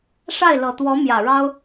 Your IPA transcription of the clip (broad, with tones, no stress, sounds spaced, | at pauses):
ʂ a˥˩ ɪ̯ l ɤ˨˩ t̪ w ɔ˧˥ m j ä˨˩ ɻ ɑ˥ ʊ̯